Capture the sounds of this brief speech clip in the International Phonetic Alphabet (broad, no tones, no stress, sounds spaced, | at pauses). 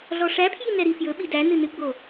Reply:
ɮ ɔ ʂ æ pʰ j i n ɛ ɾ i f j ɵ ɓ i d æ n ɨ n ɨ ɡ͡b o